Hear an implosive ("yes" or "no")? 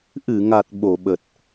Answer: yes